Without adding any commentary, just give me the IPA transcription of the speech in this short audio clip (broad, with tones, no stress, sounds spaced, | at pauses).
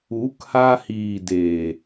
u˨˦ k h a˧ h iː˨ d eː˨